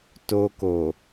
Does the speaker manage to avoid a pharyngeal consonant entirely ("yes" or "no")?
yes